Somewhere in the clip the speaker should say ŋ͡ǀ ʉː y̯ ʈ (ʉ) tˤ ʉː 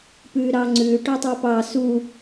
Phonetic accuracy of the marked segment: correct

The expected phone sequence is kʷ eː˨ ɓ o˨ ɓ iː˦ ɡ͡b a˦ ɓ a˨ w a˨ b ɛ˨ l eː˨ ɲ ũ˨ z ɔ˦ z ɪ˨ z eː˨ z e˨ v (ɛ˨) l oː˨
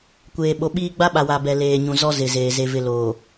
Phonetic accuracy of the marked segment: incorrect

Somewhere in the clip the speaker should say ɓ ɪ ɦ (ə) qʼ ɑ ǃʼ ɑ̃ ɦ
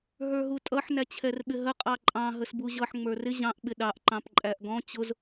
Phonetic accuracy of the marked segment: correct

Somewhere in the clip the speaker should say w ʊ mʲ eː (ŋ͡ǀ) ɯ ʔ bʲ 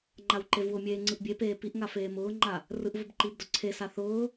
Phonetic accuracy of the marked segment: correct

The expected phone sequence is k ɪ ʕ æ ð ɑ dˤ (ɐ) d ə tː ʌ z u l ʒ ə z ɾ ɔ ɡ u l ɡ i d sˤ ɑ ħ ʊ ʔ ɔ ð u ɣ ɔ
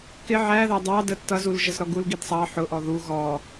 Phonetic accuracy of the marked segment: incorrect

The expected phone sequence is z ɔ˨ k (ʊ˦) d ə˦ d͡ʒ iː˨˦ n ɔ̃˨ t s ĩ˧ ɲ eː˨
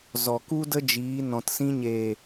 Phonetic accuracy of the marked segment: incorrect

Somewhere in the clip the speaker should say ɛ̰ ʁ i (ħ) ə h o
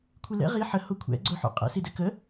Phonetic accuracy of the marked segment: correct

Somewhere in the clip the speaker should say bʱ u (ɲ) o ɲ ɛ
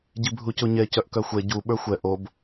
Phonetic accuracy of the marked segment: incorrect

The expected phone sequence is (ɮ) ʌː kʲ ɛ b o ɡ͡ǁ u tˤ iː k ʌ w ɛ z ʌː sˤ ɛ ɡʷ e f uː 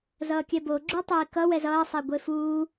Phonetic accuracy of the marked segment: incorrect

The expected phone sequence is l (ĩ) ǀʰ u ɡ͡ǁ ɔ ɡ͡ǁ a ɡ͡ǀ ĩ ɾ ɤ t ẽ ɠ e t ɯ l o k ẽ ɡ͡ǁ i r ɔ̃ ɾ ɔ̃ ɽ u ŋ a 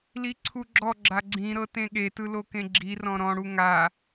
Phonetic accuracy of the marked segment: incorrect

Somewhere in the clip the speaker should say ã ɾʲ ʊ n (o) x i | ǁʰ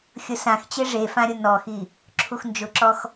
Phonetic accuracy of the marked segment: incorrect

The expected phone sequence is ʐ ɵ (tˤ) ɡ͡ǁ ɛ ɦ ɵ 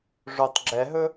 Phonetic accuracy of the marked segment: correct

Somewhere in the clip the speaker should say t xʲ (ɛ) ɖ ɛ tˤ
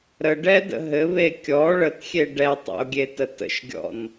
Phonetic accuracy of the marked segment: incorrect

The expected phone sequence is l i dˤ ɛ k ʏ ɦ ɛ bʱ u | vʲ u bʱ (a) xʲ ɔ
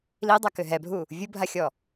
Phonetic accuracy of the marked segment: correct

